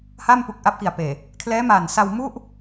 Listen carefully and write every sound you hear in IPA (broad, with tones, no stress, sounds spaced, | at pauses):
h a˥˩ m p u˨˩ k̚ ʔ a˦˥ p̚ k i˨˩ a̯ p eː˨˩ | kʰ l ɛː˦˥ m a˨˩ n s a˧ w m u˥˩ ʔ